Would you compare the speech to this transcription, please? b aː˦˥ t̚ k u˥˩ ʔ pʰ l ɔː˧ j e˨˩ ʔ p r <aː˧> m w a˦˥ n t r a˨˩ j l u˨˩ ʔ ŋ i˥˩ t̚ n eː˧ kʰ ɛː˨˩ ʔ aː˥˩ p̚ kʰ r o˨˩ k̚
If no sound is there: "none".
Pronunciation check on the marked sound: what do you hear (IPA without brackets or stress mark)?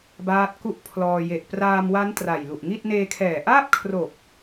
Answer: aː˧